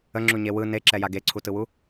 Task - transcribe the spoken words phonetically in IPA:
ə ŋ͡ǁ u ɲ e w ɯ n e ǁ ɛ j a ɡ e ǀʰ u t ɯ w u

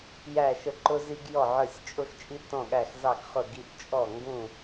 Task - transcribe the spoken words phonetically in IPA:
j æ˧˩ ʃ ə˧˩ ǃ ʊ˧ z i˧ ɡ j ɔ˧˩ ʕ ə˞˧˩ sʲ t͡ʃʼ ʊ˧ x t͡ʃʼ i˧ t ɔ̃˧˩ ɠ æ˧˩ x z ɑ˧˩ ɡ χ ʊ˧˩ ɡ i˧ ʔ t͡ʃʼ ɔ˧˩ ŋ ɡ ũ˧˩

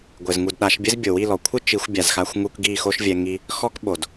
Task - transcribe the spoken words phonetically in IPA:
ɡʷ ɘ˨ z ŋ u˨ d ɗ a˨˦ ʃ bʲ ɘ˦ z bʲ o˨ w i˦˨ l ɔ˨ kʷʰ ɨ˦ t͡ʃ i˨˦ xʷ bʲ a˨ z x a˧ xʷ ŋ u˧ k ɡ i˦˨ x o˦ ʃ vʲ ɛ˧ ŋ i˧ | x ɔ˦ k ɓ o˨ d

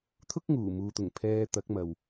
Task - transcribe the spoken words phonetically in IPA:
t̪ʰ ʊ˥ k̚ ŋ uː˨˩ m uː˨ t̪ ʊ˨˩ ŋ pʰ ɛː˧ t̪ ɐ˨˥ k̚ m ɐ˨ w

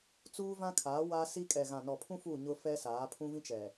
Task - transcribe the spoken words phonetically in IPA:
t͡s uː˦ v ã˦ kʰ aː˨˦ w a˦ s i˦ kʼ ɛ˨ ɣ ã˨ n ɔ˨ pʰ ũ˦ f u˦˨ ɲ ʊ˦ f ɛ˦ s aː˨˦ pʰ ũ˦ v ĩ˦ t͡ʃ ɛ˨

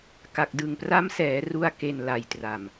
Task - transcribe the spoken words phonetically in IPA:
k a˨˩ k̚ d ɯ˨˩ ŋ p r a˦˥ m s ɛː˩˦ r u˧ a̯ k e˨˩ n l a˨˩ j t r a˨˩ m

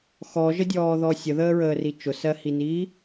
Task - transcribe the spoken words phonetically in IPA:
x ɔ ʒ ə dʲ ɔː ð ɔ sʲ ə ð əː ɹ əː r i t͡ʃ ʊ s ɜ h i n iː

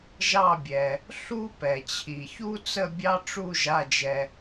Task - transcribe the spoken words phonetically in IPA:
ʒ ɑ˦˨ bʲ ɛ˩ | ɬ u˦ p ɛ˩ t͡ɕʰ i˩ ç u˦ t͡s ə˦˨ bʲ ɑ˦ ʈ͡ʂ u˦˨ ʒ a˩˧˩ d͡ʒ ɛ˩

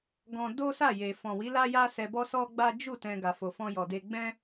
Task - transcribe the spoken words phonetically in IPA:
ɡ ɔ̃˦ d o˦ s a˦˨ j e˨ f ɔ̃˨ w i˨˦ l a˦ j a˦ s ɛ˧ b ɔ˦ s ɔ˦ ɡ͡b a˦ d͡ʒ u˦˨ t ɛ̃˧ ɡ a˨ f o˨ f ɔ̃˧ j ɔ˨ d e˧ ɡ͡b ɛ̃˦

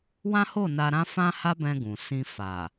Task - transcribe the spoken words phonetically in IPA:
w ã˦ h o˦˨ n a˧ ɾ ã˦ f ã˦ h a˦ b ɛ̃˧ ɡ ũ˨ s ĩ˧ f a˨

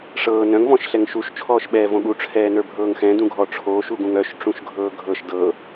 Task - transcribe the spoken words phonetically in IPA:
ʂ ɤː n œ̃ ŋ v ɔ̃ ʃ ɬ ɛ ŋ ʃ u ʃ t͡ʃʰ ɔː ʃ ɓ ɛː v õ ɠ u ʈ͡ʂʰ ɛː n ə˞ bʱ ɤː ŋ x ɛ̃ d ũ ɡʱ ɔ ʈ͡ʂʰ oː ʃ u ɡ ũ ŋ œ ʃ ʈ͡ʂ ũ ʃ ɡʱ ɤː ɡʱ ɤ ʃ d ɤ

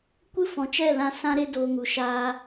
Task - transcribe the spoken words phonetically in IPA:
kʷ ɨ˦ f ɔ̃˨ t͡ʃ ɛ˦˨ l ã˧ s ã˦ ɾ e˦ d oː˧ ŋ u˨ ʃ aː˦

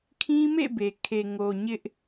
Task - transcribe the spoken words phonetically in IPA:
kʰ ĩ˦ m ḛ˦˨ b e˨ kʰ e˨ ŋ o˨ ɲ ɪ˦ ʔ

